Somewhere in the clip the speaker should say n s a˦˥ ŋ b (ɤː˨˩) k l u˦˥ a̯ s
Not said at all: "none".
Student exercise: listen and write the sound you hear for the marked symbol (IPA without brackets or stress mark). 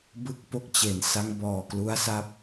ɔː˨˩